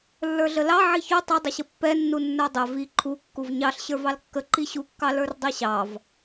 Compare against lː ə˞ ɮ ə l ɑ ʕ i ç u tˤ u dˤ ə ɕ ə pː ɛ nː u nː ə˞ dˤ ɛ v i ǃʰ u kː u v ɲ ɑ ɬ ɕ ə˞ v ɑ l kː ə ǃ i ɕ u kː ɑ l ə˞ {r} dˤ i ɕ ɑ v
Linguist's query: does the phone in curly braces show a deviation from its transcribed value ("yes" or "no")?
no